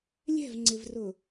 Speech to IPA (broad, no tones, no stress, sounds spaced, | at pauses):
lʲ ɛ̤ v ŋ͡ǀ ɪ v r ʊ